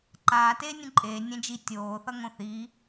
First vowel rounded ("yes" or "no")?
no